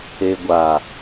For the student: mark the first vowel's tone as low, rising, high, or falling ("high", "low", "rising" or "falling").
low